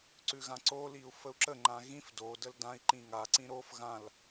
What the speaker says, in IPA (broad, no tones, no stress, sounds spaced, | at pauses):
ǀ ʉ ɣ ã ǀ o l i u̯ f ə u̯ ǁ ə ŋ͡ǃ ã ɣ ĩ f d o d ə l d ã i̯ ǃ ĩ ŋ a ǀ ĩ ɾ o f ɣ ã l